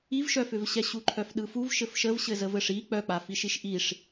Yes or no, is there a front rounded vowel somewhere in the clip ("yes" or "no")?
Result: yes